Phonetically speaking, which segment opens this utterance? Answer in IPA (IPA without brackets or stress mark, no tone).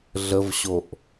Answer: ɮ